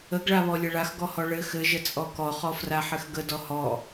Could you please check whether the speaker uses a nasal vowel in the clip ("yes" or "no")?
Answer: no